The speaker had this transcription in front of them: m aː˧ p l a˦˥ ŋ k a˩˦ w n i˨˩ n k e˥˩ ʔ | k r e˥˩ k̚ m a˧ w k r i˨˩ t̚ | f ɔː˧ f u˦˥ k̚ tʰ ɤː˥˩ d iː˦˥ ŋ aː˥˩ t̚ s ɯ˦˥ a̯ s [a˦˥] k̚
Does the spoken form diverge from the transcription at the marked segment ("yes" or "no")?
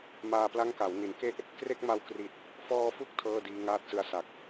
yes